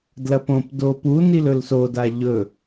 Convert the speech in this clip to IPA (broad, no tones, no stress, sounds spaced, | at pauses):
d l ɐ p õ p d oː p u n i l ɵ l s o d a ʎ ɵ